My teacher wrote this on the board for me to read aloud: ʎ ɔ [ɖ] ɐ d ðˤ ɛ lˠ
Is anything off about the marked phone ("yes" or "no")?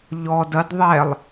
yes